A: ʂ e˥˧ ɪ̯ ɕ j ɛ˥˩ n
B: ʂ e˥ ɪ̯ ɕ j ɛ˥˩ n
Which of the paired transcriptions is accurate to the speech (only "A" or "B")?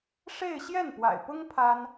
A